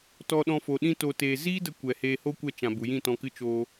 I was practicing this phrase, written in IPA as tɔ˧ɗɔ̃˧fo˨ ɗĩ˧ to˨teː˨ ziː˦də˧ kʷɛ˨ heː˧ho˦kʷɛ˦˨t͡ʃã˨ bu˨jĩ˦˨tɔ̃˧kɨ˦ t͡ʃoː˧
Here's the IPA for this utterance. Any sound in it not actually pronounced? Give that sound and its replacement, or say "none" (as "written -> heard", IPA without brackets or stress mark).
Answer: none